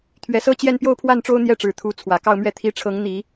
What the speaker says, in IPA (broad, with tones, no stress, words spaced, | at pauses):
t̪ʰɥɛ˨˩sɤ˥t͡ɕjɛ˥˧n pjo˥˧ʊ̯pʰwa˥˩nʈ͡ʂo˥ʊ̯ n̪jɛ˥˩ʈ͡ʂɻ̩˨˩ t̪ʰu˧˥ t͡sʰwä˨˩kɑ˥˧ʊ̯mɥɛ˥˩ t̪ʰi˥ ʈ͡ʂʰɤ˧˥ŋn̪i˨˩˦